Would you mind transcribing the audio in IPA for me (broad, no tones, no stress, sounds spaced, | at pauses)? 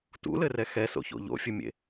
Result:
t ṵ l ɘ r ɛ x ɛ s o̰ ç o̰ ʎ o̰ fʲ ɘ mʲ ḛ